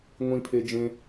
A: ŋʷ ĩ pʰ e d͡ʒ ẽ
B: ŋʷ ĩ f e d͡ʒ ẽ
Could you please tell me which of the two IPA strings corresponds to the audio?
A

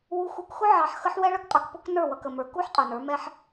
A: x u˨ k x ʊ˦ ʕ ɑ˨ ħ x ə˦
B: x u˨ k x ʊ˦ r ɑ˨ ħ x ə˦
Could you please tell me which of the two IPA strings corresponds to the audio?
A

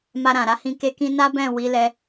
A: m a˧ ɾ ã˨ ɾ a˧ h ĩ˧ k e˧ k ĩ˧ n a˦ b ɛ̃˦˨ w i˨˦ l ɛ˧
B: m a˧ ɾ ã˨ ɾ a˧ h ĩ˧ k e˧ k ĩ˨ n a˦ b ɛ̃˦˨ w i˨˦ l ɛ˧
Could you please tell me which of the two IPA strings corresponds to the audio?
A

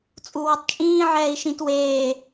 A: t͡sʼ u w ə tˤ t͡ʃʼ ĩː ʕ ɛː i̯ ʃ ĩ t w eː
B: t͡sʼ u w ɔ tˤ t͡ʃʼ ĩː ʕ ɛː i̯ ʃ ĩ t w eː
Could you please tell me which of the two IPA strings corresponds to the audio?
B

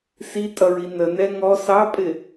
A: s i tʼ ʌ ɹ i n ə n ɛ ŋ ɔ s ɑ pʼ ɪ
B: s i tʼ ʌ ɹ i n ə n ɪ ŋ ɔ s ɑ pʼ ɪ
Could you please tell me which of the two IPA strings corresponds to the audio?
A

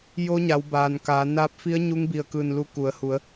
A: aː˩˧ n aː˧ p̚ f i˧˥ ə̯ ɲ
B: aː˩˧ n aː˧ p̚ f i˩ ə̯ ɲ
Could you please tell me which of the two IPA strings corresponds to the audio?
A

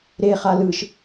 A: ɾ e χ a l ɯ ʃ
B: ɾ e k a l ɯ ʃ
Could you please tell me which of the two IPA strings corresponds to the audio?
A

